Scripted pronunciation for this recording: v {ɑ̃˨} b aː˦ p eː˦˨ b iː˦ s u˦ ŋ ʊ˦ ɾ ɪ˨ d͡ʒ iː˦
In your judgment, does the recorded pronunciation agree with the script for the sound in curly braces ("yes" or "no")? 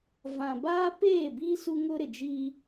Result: no